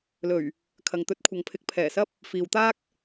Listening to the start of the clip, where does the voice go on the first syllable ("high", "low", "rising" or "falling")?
low